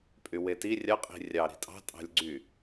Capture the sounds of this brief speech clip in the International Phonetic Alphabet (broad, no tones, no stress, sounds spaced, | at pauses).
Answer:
pʼ y w e t i rʲ ɑ qʼ i̤ rʲ ɑ ɾ i̤ tʼ ɑ̤ tʼ ɑ̤ lʲ ɡ͡ǀ y